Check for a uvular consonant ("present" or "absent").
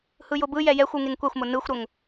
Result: absent